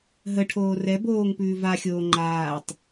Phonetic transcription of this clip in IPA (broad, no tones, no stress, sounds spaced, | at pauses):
ɦ ə ʈʰ oː r ɛ b oː ŋ p ʉː v a xʲ oː ŋ͡ǃ aː tˤ